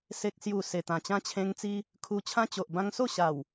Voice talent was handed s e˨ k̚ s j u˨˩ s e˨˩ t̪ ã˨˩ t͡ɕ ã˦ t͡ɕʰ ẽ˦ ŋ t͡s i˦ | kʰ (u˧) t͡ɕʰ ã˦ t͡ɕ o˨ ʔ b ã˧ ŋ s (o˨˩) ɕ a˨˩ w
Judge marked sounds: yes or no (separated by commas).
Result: yes, no